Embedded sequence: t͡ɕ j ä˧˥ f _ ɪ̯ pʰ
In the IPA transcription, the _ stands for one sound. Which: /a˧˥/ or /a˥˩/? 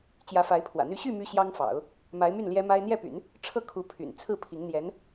a˧˥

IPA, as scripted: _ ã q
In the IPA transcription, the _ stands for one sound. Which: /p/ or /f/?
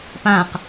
p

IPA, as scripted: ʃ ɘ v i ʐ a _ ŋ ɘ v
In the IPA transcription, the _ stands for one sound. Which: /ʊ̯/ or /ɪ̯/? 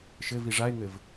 ɪ̯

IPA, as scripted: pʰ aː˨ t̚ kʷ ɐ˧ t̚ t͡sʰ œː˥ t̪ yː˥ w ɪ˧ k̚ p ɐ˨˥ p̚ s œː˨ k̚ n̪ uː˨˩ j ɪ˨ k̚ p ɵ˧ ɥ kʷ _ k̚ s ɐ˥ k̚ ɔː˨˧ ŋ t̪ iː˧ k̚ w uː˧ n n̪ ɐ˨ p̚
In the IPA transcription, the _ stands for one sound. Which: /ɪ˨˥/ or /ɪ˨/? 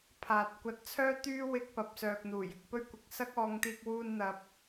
ɪ˨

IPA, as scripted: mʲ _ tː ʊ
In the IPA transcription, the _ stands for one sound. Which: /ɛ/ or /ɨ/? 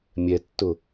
ɛ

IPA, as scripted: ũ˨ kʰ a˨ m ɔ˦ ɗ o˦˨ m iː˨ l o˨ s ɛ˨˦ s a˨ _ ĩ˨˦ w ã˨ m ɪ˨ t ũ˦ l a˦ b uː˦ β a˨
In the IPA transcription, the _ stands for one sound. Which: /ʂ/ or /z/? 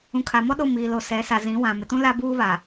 z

